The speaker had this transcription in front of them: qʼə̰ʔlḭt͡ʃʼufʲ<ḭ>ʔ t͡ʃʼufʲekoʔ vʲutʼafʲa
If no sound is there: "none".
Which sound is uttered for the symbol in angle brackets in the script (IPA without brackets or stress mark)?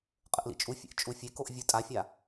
ḛ